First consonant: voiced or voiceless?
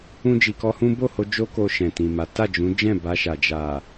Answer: voiced